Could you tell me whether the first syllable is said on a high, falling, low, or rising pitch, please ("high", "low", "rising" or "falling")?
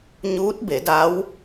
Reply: rising